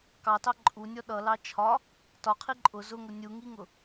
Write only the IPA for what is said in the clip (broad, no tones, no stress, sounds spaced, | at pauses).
k ɑ t ɑ ǃʼ u nʲ ɔ ɗ ʌ l ɑ t͡ʃʰ ɒ | t ɒ qʰ i ǃʼ ʊ z ʊ ŋ ʊ nʲ u ŋ i ŋ ʊ